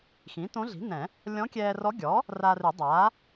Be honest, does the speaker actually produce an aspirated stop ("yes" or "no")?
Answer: no